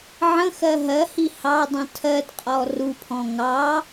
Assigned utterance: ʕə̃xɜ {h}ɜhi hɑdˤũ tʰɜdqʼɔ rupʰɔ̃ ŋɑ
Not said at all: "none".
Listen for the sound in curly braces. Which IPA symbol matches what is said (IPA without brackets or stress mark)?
ɦ